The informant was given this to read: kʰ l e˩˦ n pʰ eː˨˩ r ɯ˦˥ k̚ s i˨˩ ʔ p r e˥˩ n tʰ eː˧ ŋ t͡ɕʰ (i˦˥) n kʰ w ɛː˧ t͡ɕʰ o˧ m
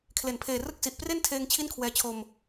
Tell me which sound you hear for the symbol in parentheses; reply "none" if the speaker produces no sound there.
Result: i˥˩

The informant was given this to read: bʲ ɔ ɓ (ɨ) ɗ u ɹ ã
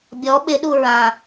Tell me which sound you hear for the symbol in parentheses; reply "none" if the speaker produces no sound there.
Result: ɪ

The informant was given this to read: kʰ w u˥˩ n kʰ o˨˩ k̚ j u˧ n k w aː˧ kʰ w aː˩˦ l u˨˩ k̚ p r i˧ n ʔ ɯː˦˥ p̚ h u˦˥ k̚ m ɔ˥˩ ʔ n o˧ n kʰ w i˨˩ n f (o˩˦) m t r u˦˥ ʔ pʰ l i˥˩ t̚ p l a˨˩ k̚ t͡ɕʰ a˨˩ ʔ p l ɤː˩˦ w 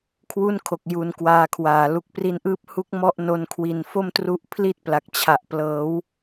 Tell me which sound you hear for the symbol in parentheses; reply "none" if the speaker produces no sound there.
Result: o˥˩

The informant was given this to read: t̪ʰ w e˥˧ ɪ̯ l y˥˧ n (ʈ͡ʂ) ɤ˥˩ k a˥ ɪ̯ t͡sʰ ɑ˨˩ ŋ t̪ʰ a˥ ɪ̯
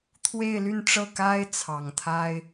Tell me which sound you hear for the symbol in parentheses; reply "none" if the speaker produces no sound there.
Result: ʈ͡ʂ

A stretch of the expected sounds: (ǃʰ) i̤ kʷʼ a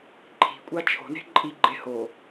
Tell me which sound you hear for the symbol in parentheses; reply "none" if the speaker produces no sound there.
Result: ǃʰ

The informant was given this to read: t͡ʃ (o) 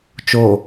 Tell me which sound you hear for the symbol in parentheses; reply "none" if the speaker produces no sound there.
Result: o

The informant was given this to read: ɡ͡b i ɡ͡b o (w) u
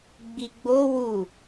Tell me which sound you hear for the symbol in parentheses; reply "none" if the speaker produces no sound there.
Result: w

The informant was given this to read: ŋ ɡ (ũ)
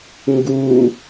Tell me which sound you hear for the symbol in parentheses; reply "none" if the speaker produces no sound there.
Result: u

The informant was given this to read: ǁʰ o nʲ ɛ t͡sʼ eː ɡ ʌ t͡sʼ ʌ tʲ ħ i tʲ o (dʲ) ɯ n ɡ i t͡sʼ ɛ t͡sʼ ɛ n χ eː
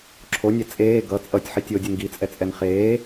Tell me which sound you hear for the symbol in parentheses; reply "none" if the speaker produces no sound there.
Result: dʲ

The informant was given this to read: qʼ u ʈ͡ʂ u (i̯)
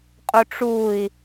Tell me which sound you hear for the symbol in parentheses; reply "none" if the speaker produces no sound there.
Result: i̯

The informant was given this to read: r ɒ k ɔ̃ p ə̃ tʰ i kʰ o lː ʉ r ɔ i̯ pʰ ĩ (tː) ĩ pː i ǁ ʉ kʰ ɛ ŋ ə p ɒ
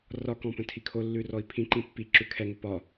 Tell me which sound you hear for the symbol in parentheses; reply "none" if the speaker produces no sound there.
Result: ǃ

